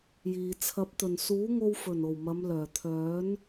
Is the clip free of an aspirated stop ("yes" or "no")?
no